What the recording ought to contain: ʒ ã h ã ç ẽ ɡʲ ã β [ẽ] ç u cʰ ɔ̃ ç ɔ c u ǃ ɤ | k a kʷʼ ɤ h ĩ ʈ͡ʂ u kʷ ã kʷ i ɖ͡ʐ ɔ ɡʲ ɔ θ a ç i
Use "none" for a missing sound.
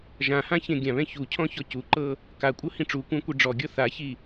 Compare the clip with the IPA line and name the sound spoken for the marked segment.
ɛ̃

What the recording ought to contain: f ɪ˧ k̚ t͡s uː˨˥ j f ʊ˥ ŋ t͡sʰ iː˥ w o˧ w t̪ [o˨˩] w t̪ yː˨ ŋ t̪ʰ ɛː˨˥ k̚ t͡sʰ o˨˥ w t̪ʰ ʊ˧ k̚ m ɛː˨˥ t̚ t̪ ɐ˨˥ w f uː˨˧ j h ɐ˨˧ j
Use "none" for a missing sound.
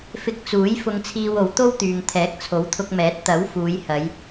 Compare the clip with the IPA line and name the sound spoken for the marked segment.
o˥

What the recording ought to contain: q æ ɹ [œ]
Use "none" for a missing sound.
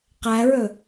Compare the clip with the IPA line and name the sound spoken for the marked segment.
ɵ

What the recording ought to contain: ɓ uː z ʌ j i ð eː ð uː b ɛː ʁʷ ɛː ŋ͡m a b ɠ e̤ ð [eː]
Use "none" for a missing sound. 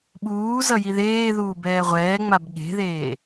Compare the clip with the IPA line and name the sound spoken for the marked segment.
eː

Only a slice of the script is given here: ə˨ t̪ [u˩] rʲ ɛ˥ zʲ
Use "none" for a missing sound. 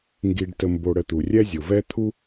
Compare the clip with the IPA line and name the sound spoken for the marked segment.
u˩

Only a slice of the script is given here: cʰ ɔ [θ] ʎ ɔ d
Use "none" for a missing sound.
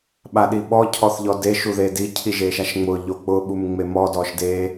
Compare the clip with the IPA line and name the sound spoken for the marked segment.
θ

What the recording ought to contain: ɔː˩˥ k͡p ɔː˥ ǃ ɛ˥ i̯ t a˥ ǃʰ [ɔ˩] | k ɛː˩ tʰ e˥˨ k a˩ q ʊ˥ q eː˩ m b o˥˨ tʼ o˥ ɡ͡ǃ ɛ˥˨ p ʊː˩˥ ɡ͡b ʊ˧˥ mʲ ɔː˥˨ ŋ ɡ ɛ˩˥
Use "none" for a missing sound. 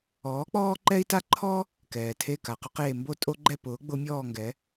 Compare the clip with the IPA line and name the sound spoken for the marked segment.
ɔ˥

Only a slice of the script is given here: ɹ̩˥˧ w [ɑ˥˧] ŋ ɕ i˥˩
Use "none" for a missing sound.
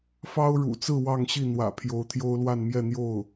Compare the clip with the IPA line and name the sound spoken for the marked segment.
ɑ˥˧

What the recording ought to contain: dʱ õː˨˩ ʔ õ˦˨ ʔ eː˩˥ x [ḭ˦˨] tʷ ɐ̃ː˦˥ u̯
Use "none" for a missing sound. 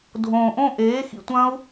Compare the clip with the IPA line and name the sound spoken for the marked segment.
ḭ˦˨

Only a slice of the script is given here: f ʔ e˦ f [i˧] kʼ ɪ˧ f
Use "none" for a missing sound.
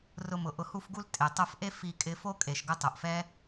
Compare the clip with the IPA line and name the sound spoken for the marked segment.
i˧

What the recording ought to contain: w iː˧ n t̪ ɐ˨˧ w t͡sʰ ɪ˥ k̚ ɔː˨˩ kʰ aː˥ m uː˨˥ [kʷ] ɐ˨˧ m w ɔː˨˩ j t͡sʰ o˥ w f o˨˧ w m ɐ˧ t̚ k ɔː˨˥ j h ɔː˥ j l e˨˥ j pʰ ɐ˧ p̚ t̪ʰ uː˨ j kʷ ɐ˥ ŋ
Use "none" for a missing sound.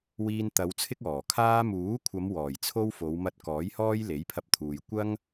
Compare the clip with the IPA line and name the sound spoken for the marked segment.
kʷʰ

